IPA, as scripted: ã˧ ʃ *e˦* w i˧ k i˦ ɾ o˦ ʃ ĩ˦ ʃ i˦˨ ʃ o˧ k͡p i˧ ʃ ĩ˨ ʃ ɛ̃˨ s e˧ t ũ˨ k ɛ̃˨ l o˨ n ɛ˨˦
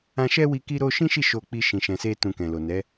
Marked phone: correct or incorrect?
incorrect